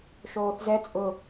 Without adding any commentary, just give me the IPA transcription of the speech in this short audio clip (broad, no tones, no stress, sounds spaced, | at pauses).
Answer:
ʃ oː θ z ɛ t͡sʼ ʊ